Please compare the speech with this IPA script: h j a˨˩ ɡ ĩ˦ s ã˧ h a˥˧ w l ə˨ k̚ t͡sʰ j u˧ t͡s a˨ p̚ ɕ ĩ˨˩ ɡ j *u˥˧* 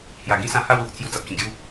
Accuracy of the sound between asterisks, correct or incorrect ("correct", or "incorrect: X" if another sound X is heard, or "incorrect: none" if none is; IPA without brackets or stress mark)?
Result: correct